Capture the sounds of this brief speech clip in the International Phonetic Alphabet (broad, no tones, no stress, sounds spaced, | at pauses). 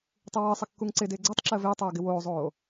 tˤ ɪ w əː sˤ ə kː u ŋ ǀ ɪ d ɪː ɡ͡ǀ e tˤ ǁ əː v ɪː tˤ oː ɡ ɪ w oː zˤ oː